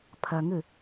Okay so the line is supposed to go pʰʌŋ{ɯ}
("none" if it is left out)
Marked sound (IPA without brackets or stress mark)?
ɯ